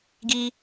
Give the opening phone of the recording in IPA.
ɡ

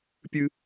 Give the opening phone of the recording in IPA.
pʲ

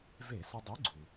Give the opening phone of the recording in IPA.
v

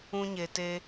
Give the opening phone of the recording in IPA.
ũ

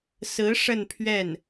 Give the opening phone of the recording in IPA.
s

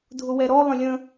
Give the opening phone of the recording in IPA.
dʱ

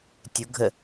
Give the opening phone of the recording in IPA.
tʲ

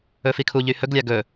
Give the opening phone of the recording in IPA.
ɵ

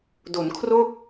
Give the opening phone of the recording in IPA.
d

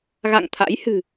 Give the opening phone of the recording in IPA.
ɣ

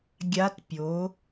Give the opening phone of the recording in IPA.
ɡʲ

